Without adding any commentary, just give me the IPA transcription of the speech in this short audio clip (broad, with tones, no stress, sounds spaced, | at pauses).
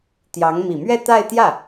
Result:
t̪ j ɑ˧˥ ŋ m i˨˩ m ɥ ɛ˥˧ t̪ a˥˧ ɪ̯ t̪ j ä˥˩